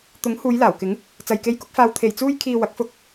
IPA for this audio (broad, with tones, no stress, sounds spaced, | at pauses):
t̪ ʊ˨˥ ŋ h uː˨˧ j l aː˨˩ w k ɪ˨˥ ŋ | t͡s ɐ˨ j k e˧ j k ʊ˨˥ k̚ f aː˧ w t̪ʰ e˨˩ j t͡s uː˧ j kʰ iː˨ w ɐ˨˥ k̚ f ʊ˧ k̚